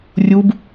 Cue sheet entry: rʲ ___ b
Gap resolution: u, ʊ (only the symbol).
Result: u